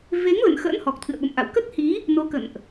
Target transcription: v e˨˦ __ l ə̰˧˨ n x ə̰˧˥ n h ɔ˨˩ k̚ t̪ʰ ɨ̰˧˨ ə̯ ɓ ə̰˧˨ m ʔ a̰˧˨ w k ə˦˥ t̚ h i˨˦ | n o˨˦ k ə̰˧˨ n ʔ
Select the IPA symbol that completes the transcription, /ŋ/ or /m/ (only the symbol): ŋ